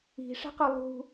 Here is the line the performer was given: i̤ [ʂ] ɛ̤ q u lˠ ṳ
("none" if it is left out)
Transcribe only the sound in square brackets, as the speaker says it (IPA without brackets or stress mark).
ʂ